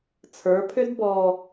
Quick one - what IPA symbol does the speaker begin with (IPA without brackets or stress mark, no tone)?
t͡sʰ